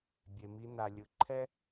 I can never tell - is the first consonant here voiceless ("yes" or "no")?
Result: no